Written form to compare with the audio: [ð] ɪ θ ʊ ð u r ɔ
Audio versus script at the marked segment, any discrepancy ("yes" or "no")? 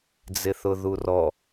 yes